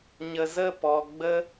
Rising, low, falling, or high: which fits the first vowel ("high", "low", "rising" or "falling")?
low